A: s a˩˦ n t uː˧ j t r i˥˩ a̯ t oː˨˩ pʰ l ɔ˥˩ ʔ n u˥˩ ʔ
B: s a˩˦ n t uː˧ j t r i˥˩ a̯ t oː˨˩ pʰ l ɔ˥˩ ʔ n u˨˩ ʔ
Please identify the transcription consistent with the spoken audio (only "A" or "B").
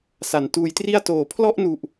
B